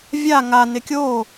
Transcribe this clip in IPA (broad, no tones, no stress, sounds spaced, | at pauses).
vʲ a ŋ a n ɪ kʲ o